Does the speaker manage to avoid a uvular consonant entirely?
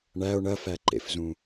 yes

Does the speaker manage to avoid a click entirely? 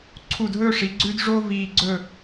no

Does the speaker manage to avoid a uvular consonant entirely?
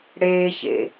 yes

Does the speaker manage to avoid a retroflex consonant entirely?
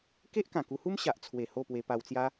yes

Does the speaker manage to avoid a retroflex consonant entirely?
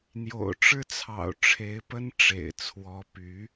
no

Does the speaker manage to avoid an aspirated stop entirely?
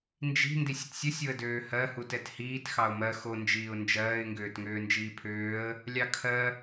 no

